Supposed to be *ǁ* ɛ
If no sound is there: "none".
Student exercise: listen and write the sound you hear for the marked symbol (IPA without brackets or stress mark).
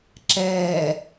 ǁ